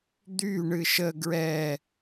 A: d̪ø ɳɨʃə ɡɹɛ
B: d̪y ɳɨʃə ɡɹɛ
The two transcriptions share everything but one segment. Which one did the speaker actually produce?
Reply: B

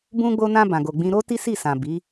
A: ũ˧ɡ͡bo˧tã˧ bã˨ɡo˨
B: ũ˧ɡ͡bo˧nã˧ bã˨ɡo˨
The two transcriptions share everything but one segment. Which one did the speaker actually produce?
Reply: B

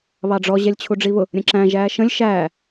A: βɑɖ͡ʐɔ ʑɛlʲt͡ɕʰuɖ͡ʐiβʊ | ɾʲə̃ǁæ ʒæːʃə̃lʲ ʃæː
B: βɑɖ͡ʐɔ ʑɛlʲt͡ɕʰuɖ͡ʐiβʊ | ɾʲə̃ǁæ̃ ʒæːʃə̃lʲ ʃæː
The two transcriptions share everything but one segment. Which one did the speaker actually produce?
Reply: B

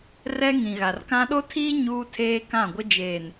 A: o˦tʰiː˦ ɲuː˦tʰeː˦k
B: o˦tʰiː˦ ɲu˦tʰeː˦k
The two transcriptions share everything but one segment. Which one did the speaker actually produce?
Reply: A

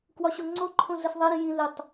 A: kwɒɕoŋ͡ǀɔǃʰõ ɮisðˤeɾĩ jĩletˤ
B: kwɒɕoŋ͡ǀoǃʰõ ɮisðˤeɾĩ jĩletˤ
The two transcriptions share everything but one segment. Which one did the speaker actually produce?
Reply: B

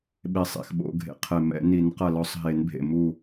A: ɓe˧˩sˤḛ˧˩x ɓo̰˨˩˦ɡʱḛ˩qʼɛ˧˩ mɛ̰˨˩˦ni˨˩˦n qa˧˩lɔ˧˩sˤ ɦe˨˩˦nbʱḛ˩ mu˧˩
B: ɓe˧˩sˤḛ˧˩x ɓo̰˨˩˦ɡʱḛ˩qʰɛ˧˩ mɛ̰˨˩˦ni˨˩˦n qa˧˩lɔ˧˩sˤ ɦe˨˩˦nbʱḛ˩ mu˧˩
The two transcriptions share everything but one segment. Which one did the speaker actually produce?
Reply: B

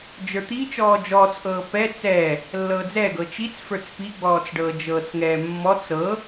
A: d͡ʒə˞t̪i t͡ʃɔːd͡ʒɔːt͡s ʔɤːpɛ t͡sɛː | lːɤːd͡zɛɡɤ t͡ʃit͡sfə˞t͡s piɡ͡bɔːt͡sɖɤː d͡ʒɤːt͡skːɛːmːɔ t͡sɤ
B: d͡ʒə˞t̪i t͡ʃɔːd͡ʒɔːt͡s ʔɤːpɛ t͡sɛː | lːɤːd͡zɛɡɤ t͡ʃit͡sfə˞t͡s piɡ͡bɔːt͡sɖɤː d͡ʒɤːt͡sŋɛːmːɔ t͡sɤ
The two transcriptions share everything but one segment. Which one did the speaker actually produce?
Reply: B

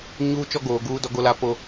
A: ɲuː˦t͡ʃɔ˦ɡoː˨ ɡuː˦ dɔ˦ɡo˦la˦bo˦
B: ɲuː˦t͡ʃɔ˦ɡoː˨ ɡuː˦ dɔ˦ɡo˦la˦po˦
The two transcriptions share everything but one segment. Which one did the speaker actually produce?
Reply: B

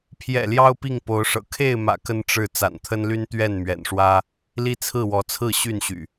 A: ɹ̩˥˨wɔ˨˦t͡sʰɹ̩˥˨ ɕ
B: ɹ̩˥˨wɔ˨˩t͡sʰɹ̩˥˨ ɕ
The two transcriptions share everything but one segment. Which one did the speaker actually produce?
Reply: A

